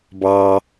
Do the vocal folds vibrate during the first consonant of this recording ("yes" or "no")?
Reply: yes